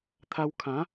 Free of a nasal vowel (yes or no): no